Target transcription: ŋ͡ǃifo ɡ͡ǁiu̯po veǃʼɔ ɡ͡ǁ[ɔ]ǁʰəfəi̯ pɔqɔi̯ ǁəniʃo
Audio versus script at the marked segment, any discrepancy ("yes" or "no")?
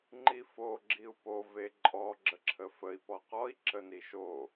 yes